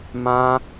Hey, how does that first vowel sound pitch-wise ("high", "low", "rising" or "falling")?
high